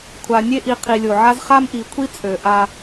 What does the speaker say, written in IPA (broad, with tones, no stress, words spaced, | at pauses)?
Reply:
kʷʰa˨nʲe˦ʔi˨ qʰi˨lʲo˨ʕa˦z χa˦mʔi˨˦kʷʰi˦ t͡sʼø˨ʔa˦